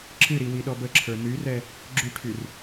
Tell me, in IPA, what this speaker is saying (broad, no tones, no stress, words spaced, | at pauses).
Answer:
ǁɨɾi wiɗɔbəǁʰə˞ nyrɛ | ɡ͡ǁyʈʰyr